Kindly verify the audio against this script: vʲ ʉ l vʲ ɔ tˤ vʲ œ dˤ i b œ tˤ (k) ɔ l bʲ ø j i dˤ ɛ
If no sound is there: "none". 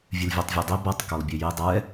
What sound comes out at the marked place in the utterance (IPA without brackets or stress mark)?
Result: k